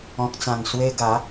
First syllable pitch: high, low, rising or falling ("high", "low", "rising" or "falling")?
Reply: low